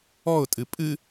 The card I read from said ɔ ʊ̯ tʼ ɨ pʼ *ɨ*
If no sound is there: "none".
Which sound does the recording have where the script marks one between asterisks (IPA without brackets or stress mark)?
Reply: ɨ